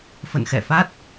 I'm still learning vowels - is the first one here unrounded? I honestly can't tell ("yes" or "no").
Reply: yes